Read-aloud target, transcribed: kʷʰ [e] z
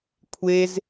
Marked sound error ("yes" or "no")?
no